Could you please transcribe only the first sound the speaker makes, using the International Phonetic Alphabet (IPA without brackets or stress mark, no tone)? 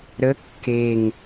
ɾ